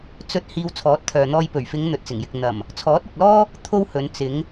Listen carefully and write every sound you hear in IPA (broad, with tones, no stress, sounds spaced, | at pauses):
t͡s ɵ˧ t̚ h iː˧ w t͡sʰ ɔː˨˥ t̚ t̪ʰ œː˨ n̪ ɔː˧ j p ɵ˨˩ ɥ f ɪ˨˧ ŋ n̪ ɵ˨ t̚ t͡s ɪ˨˩ ŋ j ɪ˨ k̚ n̪ ɐ˨˩ m | t͡sʰ ɔː˨˥ t̚ ɪ˨ k̚ l ɔː˥ | t̪ʰ o˥ w h ɵ˨˧ n t͡s ɪ˨˧ ŋ